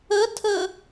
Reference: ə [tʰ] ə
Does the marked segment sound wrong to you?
no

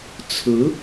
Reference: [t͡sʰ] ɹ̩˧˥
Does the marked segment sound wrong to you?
no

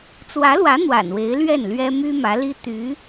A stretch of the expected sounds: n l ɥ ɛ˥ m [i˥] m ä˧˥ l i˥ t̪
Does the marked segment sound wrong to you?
yes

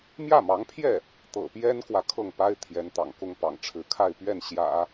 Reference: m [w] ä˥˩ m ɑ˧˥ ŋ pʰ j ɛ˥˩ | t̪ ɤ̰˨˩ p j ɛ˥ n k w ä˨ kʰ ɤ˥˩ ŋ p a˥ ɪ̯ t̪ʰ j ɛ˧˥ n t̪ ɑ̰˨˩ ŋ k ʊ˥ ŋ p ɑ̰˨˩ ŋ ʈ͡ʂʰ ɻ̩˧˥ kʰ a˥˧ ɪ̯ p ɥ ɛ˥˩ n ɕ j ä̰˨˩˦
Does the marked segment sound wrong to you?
yes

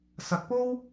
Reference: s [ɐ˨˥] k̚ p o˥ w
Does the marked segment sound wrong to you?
no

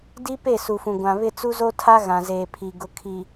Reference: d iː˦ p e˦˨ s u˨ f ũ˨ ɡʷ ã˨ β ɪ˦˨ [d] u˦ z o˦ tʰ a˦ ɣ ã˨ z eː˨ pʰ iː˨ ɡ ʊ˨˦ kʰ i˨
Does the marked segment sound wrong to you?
yes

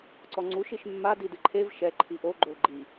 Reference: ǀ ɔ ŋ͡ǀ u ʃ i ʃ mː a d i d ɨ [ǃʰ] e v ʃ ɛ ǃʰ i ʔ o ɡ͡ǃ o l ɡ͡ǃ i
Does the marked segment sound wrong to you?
no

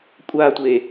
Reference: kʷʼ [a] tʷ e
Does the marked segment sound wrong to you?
no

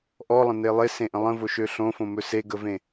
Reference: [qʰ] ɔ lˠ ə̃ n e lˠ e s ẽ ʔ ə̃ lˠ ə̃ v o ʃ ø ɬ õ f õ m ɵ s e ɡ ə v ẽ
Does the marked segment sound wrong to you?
yes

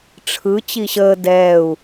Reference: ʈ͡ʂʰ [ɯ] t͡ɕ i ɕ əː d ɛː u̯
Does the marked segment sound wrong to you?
no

